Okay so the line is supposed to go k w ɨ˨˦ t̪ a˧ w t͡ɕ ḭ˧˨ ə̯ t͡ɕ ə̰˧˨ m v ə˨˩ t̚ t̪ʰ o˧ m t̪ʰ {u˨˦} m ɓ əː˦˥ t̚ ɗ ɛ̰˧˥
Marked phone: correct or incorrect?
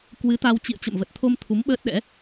correct